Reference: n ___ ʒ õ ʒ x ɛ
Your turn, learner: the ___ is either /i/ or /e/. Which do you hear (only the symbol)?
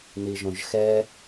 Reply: i